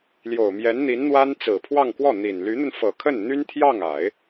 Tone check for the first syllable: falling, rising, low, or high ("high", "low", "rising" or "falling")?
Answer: low